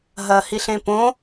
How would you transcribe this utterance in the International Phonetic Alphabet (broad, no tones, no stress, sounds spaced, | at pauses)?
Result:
ɦ ɐ h i ɬ ẽ p õ